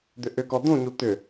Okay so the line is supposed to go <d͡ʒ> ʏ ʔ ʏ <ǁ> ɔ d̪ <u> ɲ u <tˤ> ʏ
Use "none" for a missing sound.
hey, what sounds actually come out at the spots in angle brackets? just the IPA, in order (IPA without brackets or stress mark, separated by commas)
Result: d̪, k, ũ, t̪